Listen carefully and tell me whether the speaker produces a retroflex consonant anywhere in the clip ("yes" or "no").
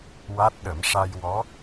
yes